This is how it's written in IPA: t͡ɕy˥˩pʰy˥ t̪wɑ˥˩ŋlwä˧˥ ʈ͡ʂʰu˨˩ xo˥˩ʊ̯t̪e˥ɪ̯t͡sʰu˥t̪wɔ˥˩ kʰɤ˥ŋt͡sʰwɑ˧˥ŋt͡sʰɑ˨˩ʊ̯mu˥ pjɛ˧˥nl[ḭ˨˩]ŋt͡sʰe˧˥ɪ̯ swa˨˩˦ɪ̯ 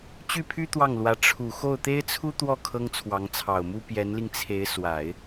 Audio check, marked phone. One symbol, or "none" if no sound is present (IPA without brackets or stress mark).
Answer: i˧